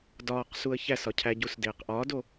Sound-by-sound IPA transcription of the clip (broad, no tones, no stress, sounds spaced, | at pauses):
d ɒː q s u ə̯ ç æ s ɒ cʰ æ ɟ u s d eː q ʔ ɒː d o